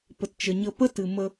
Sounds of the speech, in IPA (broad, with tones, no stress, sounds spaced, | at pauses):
p ə˨ t t͡ʃ ə˨ ɲ ə˧ p ə˦ t ɨ˨ m ə˧